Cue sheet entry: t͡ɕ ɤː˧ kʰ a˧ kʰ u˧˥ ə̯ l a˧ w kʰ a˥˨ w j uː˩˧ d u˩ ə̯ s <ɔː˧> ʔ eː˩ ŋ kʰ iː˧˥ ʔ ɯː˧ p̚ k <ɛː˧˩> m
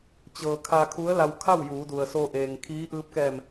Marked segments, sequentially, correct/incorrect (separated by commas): incorrect, correct